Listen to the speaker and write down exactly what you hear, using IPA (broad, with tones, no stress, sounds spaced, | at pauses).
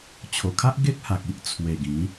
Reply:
t͡ɕʰ o˨˩ kʰ a˦ ʔ ɡ e˦ k̚ h a˨ k̚ i˦ ʔ t͡sʰ w e˨˩ ɡ ĩ˨˦